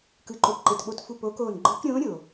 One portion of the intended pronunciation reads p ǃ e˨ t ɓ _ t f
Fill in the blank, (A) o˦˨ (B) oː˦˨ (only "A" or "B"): A